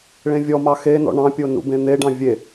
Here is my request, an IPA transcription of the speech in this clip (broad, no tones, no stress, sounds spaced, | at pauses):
ɭ ẽ vʲ ɔ m ɑ x e n ɔ̰ ɳ ɑ̃ pʲ o n ṵ b ẽ n̪ e ɖ ɑ̃ vʲ e